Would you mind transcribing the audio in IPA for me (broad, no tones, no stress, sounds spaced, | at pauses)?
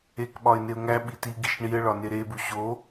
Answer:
e k ɓ ɒ ɪ̯ n e ʊ̯ ŋ æ ɓ i t i ɡ i ʃ ɳ i ə̯ ɭ ɒ n e ɾ e b u ɕ o